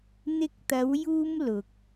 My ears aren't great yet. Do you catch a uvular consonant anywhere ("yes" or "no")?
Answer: no